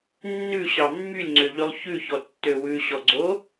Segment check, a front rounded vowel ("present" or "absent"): present